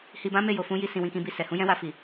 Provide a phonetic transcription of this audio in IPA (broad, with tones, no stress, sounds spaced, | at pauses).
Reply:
h i˧ b ã˦ m e˦˨ j o˨ f ũ˨˦ j i˧ s ĩ˨ w ĩ˨ k ĩ˧ b i˧ s ɛ˨ h ũ˨˦ j ɛ̃˦ w a˧ f i˨